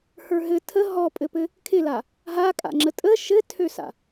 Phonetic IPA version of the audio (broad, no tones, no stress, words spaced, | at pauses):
hə˞ɦɘ tʰə ɦɔpʼɘpɘ | kʰɪla | ɦakʼa̰ ŋ͡ǁətʼə ʃɘtʰøsa̰